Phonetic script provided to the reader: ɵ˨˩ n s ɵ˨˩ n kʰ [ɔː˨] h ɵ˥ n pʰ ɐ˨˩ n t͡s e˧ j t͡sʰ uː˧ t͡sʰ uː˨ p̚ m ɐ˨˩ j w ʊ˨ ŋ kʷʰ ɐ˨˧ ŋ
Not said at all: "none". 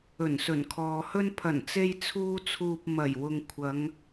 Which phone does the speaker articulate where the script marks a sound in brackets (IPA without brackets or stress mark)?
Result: ɔː˨